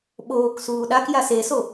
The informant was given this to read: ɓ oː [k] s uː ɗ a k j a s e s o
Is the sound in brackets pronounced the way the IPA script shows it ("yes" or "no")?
yes